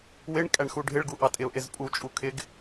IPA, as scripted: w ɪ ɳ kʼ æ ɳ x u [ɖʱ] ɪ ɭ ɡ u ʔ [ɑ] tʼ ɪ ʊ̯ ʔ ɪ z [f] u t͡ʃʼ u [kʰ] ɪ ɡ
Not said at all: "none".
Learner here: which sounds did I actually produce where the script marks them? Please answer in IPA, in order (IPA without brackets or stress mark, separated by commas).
ɖʱ, ɑ, pʼ, kʰ